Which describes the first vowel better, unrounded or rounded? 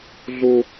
rounded